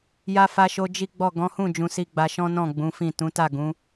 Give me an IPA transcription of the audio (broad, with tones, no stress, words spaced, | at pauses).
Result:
ja˧fa˧ʃo˧ d͡ʒi˦ɡ͡bɔ˦˨ ɡɔ̃˨˦hũ˦˨ d͡ʒũ˧si˧ɡ͡ba˧ʃɔ̃˦ nɔ̃˦˨ɡ͡bũ˨˦fĩ˦˨ tũ˨˦ta˦˨ ɡũ˨˦